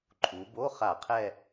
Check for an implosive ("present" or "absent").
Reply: absent